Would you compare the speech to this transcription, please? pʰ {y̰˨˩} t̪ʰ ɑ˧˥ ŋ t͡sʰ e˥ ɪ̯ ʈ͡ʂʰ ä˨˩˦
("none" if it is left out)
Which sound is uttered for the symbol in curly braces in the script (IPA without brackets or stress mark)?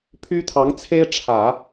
y˥